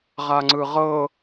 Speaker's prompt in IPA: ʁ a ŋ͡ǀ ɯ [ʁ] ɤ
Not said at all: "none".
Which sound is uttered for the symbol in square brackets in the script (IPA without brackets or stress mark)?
ʁ